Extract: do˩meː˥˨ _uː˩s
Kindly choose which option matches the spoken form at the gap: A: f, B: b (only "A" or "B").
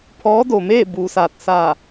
B